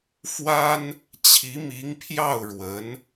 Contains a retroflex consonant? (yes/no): yes